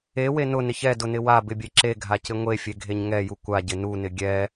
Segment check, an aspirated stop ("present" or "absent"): absent